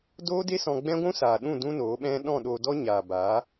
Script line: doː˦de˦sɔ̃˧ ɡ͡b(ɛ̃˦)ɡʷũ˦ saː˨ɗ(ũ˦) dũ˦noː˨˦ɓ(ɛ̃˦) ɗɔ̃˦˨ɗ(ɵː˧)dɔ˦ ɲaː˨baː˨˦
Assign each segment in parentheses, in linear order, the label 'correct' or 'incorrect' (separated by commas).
correct, incorrect, correct, incorrect